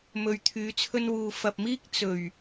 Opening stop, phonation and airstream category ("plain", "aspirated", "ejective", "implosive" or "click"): aspirated